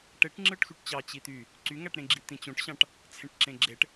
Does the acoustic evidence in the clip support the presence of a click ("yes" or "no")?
yes